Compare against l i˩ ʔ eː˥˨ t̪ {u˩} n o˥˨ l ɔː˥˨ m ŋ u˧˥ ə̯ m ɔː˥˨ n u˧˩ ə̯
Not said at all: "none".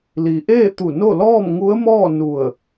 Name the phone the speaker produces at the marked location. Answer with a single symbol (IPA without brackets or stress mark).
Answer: u˧˩